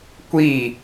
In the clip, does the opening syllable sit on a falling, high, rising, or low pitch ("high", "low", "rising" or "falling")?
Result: falling